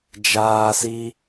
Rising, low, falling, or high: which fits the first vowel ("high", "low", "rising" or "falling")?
high